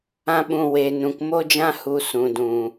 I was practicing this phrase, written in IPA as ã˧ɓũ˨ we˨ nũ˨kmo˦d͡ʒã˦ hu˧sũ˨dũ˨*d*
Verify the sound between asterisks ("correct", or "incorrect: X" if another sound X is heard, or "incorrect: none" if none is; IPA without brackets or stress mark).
incorrect: none